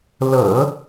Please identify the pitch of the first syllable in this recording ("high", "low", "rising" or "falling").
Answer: low